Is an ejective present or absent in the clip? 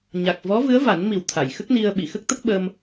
absent